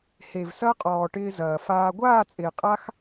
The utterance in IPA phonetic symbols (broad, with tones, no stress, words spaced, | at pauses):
he˨vsɐ˦qʼɔː˨ ʈɪː˧zɐː˨faː˧ ɡʷaː˦˨t͡sʼɪː˨qʼa˧x